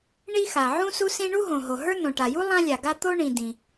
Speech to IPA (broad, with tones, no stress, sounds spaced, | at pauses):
ɳ i˥ x a˩ ʕ ũ˥ s u˥ s ĩ˥ ɳ u˥ ɦ õ˩ ɦ o˩ ɦ ə˞˥ n õ˩ ʈ a˩ j u˥ lˠ ã˥ lʲ a˩ ɡ a˥ t̪ o˥ ɳ ĩ˩ d ĩ˩